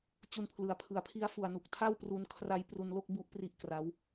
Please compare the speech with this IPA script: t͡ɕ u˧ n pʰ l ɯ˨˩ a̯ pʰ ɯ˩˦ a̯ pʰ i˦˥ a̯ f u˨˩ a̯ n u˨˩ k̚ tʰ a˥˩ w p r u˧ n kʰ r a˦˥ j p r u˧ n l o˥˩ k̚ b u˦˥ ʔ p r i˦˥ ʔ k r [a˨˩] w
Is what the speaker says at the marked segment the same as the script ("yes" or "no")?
no